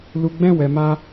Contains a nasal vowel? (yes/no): yes